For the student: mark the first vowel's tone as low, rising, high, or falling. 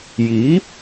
rising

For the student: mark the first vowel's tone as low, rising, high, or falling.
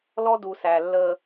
high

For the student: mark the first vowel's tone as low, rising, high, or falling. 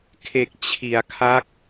low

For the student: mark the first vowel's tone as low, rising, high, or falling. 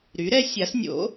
rising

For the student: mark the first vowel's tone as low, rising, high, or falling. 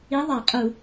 rising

